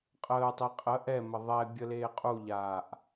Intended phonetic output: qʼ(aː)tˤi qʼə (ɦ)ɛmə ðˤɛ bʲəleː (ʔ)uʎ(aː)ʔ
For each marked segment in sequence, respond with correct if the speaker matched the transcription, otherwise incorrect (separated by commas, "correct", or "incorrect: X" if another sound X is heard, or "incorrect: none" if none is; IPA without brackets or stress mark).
incorrect: əː, incorrect: ʔ, incorrect: qʼ, correct